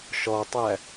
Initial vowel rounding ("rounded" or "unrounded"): rounded